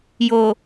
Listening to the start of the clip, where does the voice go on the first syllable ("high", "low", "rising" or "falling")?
low